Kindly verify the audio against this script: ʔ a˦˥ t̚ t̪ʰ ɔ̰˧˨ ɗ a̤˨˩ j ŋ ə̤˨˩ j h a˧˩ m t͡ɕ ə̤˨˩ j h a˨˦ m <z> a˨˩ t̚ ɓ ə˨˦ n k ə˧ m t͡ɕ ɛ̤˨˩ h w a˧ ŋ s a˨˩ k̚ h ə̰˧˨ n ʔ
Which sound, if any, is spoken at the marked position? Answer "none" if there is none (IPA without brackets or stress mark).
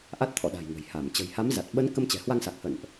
z